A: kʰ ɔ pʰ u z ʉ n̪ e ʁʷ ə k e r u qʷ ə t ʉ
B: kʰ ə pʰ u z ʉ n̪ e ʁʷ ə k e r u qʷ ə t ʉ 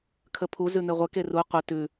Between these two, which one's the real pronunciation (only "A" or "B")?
B